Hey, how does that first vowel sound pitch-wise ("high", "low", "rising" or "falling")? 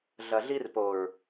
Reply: low